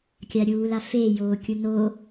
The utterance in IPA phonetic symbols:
kʲ a ɾʲ uː l a f e j oː kʲ u n o

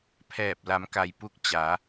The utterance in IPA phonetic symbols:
pʰ ɛː˧˩ p̚ l a˩˧ m k a˩ j p u˧ k̚ t͡ɕ a˩˧

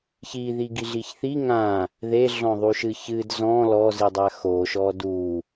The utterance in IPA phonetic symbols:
ç i ð i ɡ i ɮ i ç θ i ŋ ã | ð e ɮ ɔ̃ ðˤ u ʃ ɨ ç ɨ d z ɔ̃ l ɔ z i dˤ a x o ʃ ɔ d u

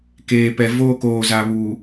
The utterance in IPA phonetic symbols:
k eː˨ p ɛ˨ v oː˦ k oː˨ z a˨ β uː˨

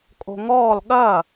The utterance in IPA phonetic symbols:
kʼ o̤ ŋ ɔː l ɠ ɐ

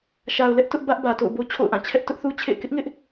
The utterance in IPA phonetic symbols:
ʃ a˨ ʊ̯ l ɛ˦ ʔ t ʊ˦ ʔ b ä˦ ʔ b ä˨ t o̰˦˨ ʊ̯ b o˦ t͡ɕʰ o̰˦˨ ʊ̯ ʔ ã˦˨ t͡ɕʰ ɛ˦ ʔ t ʊ˦ ʔ θ u˦ t͡ɕʰ ḛ˦˨ ɪ̯ k ɪ˦ ʔ ŋ ɪ˦ ʔ

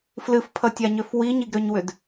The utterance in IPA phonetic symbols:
f l ɨ f pʰ ʌ tʲ a ɲ ø f w i ɲ i ɡ ɾ ø ɲ w ʏ d

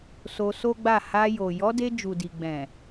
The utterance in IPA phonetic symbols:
s o˧ s o˦ ɡ͡b a˦˨ h a˧ j o˨ j ɔ˨˦ d e˧ d͡ʒ u˨ d i˨ ɡ͡b ɛ̃˨

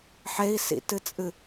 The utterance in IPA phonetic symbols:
ħ e i̯ s ḭ t ɨ t͡sʼ ɨ

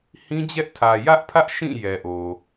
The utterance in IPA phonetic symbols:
h ĩ˦ d͡ʑ ɛ˦ ʔ tʰ ä˨ j ä˦ ʔ pʰ ä˦ ʔ ʃ ĩ˦˨ j ɛ˨ ʔ o˨

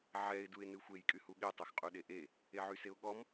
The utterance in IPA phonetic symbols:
ʕ ɛ ɪ̯ d u ɪ̯ n ɨ xʷ e j kʼ y h u ɠ e tˤ o x qʼ u ɗ e ʔ e | e ʕ y s e ʊ̯ ɠ ɔ m

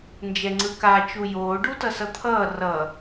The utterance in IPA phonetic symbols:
n d͡ʒ ɛ ŋ͡ǀ ɯ k a t͡ʃ u j oː ɖ u t ʌ s ʌ t̪ʰ ʌː r ʌ

